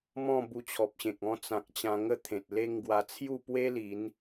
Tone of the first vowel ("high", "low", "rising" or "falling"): falling